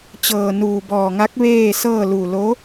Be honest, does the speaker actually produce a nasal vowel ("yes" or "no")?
no